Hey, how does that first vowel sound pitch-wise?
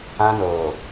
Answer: high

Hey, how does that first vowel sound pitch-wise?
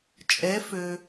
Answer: rising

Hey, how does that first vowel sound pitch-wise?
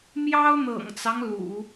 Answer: high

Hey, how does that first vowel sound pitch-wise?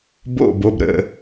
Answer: falling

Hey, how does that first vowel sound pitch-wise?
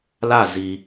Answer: falling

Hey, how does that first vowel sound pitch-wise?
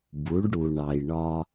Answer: rising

